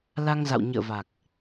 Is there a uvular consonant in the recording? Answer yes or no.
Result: no